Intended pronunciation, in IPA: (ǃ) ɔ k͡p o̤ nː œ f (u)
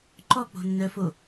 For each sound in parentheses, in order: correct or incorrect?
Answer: correct, incorrect: o

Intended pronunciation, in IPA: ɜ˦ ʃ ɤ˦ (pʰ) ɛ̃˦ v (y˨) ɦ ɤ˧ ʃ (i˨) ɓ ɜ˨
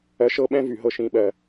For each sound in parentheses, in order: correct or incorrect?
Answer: incorrect: ɓ, correct, incorrect: ĩ˨

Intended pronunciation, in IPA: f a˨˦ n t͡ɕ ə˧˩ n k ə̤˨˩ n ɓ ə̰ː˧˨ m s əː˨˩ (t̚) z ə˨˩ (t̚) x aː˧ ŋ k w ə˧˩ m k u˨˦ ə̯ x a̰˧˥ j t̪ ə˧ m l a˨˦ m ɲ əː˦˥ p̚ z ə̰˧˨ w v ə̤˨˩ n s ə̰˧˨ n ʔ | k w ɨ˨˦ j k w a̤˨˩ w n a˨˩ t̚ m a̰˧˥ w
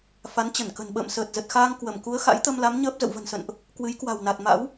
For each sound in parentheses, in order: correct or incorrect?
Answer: correct, correct

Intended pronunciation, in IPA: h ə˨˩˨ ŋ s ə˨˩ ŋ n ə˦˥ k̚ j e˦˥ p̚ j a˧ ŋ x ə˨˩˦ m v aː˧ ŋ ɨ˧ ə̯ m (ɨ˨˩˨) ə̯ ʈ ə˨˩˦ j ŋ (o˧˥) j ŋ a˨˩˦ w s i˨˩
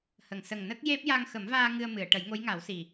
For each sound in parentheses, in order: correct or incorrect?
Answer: correct, correct

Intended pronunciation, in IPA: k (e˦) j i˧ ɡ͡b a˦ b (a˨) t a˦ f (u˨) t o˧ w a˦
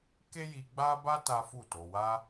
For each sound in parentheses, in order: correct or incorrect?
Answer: correct, incorrect: a˦, incorrect: u˦˨

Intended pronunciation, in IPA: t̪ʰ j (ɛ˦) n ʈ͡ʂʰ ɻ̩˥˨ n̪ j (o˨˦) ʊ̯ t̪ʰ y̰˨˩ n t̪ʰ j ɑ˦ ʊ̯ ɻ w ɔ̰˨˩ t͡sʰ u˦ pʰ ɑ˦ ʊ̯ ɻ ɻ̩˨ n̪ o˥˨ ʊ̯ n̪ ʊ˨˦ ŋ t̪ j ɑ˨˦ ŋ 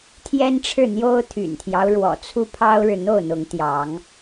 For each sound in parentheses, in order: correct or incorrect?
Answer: correct, incorrect: o˦

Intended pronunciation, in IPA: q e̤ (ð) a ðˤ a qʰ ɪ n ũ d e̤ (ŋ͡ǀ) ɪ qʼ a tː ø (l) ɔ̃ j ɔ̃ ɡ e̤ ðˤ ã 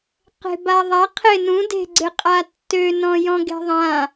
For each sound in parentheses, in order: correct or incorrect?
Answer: incorrect: b, incorrect: ɡ͡ǀ, incorrect: n

